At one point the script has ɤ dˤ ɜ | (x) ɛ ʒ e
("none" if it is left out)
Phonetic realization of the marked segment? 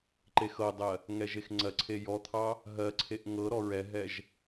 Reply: ŋ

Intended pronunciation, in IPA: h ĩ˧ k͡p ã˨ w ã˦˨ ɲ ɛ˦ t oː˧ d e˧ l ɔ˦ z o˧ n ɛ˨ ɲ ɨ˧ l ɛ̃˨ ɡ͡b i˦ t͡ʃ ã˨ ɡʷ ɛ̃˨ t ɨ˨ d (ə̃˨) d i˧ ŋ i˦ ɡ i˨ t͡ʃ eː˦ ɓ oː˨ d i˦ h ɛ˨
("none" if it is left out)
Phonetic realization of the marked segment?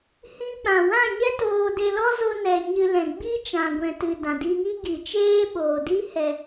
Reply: ã˨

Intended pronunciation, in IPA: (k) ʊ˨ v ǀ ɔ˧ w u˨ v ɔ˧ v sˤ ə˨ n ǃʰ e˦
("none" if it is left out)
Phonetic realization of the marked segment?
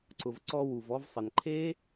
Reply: ǀ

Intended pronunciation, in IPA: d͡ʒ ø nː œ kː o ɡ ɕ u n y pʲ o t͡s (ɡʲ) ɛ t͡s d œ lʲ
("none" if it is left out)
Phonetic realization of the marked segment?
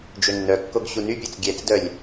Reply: ɡʲ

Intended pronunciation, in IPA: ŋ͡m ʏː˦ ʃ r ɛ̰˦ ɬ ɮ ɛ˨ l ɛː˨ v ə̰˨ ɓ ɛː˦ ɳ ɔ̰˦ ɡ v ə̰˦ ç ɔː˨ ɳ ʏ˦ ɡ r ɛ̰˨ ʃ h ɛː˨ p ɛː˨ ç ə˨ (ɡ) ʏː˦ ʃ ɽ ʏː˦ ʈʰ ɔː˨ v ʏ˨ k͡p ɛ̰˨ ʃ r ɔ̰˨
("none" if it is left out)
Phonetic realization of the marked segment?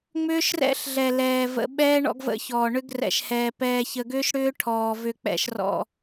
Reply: ɡ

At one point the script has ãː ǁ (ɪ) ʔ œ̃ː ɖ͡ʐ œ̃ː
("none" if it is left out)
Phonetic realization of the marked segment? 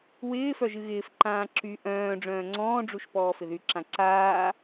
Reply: y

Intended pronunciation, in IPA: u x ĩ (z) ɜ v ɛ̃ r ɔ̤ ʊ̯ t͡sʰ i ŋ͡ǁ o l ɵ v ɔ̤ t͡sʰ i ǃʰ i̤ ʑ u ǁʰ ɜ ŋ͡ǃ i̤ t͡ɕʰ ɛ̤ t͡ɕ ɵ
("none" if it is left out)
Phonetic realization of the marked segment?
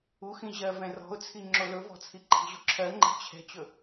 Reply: ʑ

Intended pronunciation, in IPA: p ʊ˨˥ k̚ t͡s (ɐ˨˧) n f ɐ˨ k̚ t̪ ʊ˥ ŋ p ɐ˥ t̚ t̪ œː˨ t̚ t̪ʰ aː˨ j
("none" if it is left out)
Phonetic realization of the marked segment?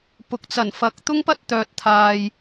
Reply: ɐ˨˩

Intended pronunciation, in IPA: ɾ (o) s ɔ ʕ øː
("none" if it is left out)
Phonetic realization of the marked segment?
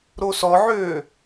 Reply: o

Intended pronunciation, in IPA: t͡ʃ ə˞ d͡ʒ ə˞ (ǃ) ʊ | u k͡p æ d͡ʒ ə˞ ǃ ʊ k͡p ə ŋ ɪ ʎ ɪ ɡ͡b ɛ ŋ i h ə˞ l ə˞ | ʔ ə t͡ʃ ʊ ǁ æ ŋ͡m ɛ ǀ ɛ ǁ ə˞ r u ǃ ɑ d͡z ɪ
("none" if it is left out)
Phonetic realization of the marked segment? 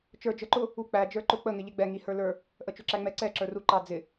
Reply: ǃ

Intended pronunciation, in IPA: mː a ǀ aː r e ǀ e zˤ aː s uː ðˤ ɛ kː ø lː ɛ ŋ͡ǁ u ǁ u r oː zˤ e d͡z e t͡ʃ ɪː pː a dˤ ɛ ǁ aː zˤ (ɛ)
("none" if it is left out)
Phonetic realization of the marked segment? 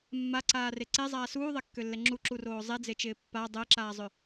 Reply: ø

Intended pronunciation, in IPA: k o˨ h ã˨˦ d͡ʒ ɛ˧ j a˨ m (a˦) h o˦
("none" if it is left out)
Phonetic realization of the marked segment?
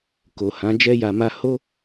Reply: a˧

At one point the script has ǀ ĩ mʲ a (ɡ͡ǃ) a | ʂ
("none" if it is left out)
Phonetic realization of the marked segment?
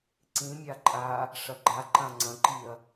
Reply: ǃʼ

